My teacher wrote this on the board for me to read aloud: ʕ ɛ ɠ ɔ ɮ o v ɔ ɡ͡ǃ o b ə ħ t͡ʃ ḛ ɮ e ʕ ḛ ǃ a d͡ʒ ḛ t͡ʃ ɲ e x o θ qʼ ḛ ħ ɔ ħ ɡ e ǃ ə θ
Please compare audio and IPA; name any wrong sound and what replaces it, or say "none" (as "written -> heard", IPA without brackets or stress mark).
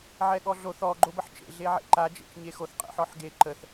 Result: v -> θ